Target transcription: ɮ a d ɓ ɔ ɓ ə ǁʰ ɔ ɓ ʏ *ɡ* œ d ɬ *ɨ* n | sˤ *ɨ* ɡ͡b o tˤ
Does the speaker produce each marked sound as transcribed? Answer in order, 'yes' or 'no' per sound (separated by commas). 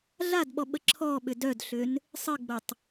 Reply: no, no, yes